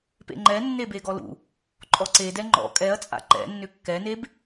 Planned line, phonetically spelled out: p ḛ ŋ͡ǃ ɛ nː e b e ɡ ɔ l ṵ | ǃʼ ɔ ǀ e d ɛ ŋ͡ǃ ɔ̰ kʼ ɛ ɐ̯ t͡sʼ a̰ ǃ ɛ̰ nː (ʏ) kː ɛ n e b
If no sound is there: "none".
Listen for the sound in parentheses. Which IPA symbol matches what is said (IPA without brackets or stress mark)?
ʏ